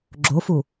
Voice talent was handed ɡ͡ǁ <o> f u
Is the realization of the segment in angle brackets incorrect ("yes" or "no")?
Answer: no